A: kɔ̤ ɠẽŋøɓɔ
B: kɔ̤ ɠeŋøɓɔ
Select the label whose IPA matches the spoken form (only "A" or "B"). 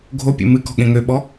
A